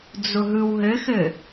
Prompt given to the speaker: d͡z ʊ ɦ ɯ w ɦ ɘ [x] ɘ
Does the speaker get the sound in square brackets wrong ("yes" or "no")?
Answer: no